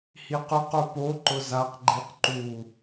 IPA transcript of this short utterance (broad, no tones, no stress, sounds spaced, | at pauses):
h i q ʊ q o p o ǃ ʊ z a q ɡ͡ǃ i q ǃ u